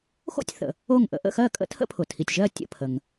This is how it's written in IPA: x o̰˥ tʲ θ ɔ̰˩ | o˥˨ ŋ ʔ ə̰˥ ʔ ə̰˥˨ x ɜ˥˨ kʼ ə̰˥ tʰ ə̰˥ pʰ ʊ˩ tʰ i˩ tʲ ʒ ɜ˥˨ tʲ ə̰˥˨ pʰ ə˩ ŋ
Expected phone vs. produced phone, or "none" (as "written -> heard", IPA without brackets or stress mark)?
ɔ̰˩ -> ə̰˩